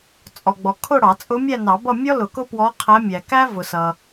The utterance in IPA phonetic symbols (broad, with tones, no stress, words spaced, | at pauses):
t͡sʼɔ˨ɡ͡bɔ˨kʰʊ˥˧ɽɑ˨˩˦ t͡sʼʊ˧˥mʲæ˥˧nɑ˨˩˦bʌ˥˧ mʲɔ˥lʊ˨˩˦ kʊ˥pwɔ˧˥ qʰæ˧˥mʲæ˨ kæ˥vʊ˨sʌ˨